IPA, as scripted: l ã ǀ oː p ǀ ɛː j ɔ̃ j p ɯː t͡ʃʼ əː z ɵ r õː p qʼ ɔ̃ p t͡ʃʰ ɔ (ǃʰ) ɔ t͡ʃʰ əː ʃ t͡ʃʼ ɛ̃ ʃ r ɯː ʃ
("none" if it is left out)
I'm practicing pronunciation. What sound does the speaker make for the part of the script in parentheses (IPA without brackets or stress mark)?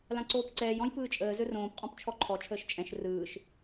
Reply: ǃʰ